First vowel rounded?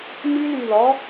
yes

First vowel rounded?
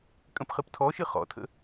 no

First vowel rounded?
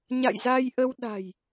no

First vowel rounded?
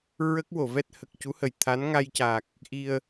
no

